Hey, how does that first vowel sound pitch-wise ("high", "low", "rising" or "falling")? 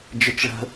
high